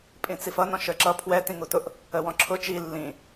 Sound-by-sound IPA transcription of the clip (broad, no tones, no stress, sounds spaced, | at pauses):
pʼ ĩ t͡s i f ʌ n ɔ̃ ʃ ə˞ ǁ ʌ pʰ w ɛ t ĩ ŋ u t ʊ ʔ | ə w ɔ̃ ǁʰ ʊ t͡ʃ i lː ĩ